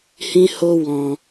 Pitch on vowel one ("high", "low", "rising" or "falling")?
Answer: high